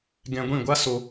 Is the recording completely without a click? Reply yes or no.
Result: yes